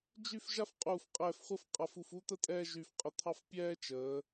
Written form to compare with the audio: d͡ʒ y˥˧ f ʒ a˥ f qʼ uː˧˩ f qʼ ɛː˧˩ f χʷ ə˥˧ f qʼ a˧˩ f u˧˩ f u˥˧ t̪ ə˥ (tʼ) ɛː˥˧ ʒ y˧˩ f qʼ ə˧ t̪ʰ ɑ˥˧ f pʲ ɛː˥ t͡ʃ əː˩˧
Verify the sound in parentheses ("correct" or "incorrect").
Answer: correct